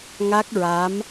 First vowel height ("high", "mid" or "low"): low